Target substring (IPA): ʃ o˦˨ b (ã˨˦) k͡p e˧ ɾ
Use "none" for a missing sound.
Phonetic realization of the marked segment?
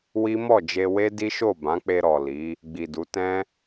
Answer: ã˨˦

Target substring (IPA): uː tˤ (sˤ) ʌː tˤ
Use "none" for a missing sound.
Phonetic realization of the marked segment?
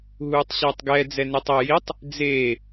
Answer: ɕ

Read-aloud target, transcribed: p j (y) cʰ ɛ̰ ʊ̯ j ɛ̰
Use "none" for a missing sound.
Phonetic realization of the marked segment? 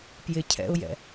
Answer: ɪ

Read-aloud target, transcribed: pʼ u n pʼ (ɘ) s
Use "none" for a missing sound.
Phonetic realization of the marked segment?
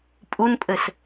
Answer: ɘ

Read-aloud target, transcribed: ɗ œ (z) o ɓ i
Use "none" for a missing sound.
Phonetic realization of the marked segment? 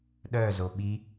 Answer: z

